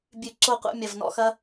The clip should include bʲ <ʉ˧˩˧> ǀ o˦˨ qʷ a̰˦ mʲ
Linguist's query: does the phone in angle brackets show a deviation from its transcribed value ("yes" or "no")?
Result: no